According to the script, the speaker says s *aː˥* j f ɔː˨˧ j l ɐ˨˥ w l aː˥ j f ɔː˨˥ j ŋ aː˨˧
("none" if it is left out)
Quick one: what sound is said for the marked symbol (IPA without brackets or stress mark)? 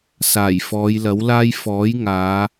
aː˨˩